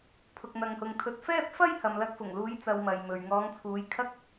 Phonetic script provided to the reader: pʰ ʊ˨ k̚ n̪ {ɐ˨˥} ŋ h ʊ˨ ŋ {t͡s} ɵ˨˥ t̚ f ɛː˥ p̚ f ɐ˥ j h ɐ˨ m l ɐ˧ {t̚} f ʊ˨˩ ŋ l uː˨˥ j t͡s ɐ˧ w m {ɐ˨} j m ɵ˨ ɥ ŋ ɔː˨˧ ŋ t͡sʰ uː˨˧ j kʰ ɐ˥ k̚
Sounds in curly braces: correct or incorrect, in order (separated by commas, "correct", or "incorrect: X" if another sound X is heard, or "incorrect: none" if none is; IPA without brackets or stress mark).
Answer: incorrect: ɐ˨, incorrect: t̪ʰ, incorrect: k̚, correct